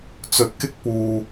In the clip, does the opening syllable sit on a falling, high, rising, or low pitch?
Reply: rising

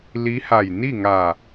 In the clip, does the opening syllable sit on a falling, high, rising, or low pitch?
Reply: rising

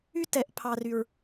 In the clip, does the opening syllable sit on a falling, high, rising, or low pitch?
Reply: high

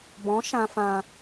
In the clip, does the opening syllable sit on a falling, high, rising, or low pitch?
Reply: rising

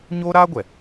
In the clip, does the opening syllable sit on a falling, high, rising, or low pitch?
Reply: high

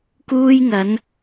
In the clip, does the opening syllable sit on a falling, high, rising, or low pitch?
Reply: high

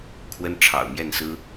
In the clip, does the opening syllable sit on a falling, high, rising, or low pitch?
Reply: high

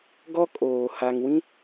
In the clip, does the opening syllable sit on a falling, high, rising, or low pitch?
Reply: high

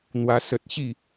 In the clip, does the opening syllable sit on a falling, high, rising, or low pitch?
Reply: high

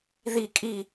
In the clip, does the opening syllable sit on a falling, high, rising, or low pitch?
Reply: falling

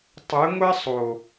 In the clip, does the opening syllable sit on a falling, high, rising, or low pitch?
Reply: rising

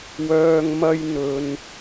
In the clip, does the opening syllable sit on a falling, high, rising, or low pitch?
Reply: low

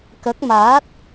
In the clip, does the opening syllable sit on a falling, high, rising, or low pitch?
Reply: rising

